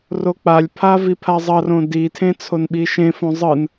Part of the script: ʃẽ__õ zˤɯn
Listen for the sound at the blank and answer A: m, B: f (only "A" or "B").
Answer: B